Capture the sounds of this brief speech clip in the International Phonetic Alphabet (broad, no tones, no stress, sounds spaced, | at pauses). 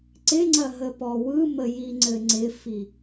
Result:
ǀ ɪ ŋ͡ǀ ɐ ɦ ə p ɔ w ɯ m ə j i ŋ͡ǀ ɘ ŋ͡ǀ ɪ f i